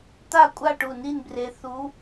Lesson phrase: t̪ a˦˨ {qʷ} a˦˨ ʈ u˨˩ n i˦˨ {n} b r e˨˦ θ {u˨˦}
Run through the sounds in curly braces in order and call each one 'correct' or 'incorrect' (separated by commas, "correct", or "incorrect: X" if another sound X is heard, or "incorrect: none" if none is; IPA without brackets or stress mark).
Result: incorrect: kʷʼ, correct, correct